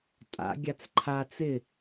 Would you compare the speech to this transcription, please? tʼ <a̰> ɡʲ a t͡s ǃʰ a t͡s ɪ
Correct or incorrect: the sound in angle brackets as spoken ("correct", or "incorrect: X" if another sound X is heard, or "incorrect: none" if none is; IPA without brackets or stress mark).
correct